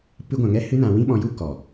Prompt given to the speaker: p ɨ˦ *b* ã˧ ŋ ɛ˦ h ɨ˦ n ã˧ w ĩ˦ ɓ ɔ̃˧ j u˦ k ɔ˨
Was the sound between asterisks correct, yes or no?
no